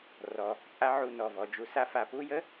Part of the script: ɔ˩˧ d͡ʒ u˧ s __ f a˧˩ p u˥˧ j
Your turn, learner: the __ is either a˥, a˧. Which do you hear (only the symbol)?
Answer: a˥